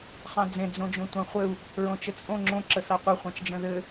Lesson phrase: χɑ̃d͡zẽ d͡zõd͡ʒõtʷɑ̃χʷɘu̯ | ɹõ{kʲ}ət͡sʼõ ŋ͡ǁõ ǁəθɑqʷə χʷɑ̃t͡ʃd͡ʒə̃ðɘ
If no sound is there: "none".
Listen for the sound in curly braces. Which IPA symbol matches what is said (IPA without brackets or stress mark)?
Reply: t͡ʃ